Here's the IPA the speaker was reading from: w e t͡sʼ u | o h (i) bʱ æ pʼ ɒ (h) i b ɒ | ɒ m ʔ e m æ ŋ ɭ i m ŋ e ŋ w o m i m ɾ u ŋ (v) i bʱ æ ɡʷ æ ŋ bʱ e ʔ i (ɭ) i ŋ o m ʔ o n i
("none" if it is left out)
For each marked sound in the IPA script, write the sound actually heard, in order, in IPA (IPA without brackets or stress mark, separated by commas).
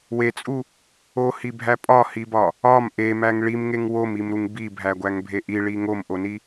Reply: i, h, b, ɭ